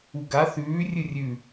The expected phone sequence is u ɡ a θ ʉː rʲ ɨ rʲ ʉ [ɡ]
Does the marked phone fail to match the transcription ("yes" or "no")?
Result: yes